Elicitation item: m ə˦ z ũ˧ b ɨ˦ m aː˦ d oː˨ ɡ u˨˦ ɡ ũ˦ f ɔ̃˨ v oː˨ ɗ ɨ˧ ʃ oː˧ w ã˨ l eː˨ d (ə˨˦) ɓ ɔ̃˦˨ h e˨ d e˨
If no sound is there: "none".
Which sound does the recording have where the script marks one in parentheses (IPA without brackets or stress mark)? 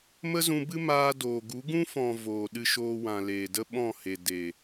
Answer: ə˦